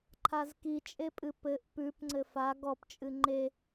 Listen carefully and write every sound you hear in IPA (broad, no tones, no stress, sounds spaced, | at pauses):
ǃʰ a z k i t͡ʃʼ e pʼ ɨ p ɘ ʔ p ʉ p ŋ͡ǀ ɘ f a ɡ ɔ p t͡ʃʼ ɨ ŋ͡ǃ e